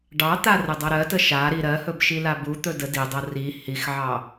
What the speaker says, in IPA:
ɖ ɑ t̪ a r ə dˤ ɤ ɾ ɜ t ə ʃ a ɾ i ɾ ɜ h ɵ b ʃ i l a b u t̪ ɵ d ə d i dˤ ɤ r i h i x ʕ ɑ

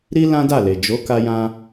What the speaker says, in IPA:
ɾ i˦ l ã˦ d a˦˨ l e˨ d͡ʒ o˨˦ k a˧ j ã˧

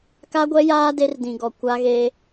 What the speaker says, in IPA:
k a˦ ɡʷ ɛ˦ j aː˦ d e˦ r d ĩ˨ ɡ ɔ˨ kʷ a˦ ɣ e˦

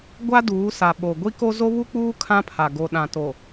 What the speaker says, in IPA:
ɡʷ a˦ d uː˨˦ s a˨ ɓ o˨ ɡʷ i˦ k o˦ z o˦ β u˦ k͡p uː˦ kʰ ã˦ pʰ a˨ ɡ o˨ ɗ ã˨ t o˨

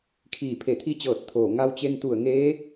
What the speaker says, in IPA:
kʰ iː˧˩ pʰ e˧˩ t̪ʰ i˧˥ t͡ɕ ɤː˧˩ t̚ t̪ʰ oː˧˩ ŋ a˧ w t͡ɕ e˧ n t̪ u˧˩ ə̯ ŋ eː˧˥

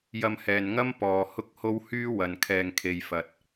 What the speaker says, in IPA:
j ɐ˧ m h ɛː˨ n ŋ ɐ˥ m p ɔː˨ h ʊ˥ k̚ h o˥ w h yː˥ w ɐ˨ n kʰ ɛː˨ ŋ kʰ e˨ j f ɐ˨ t̚

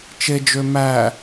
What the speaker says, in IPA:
t͡ʃ e d͡ʒ ø m æ

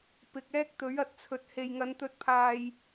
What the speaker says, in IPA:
p ɪ˨ k̚ ɛː˥ k̚ t̪ ɵ˨˥ ɥ ɐ˧ t̚ t͡sʰ ɵ˨ t̚ h e˨ j ŋ ɐ˨˧ n t̪ ɵ˨˥ t̚ pʰ aː˨ j

